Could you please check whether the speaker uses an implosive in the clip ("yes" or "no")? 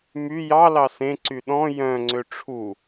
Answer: yes